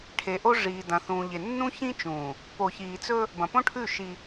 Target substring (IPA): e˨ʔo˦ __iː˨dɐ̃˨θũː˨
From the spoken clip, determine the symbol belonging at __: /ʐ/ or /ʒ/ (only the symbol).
ʐ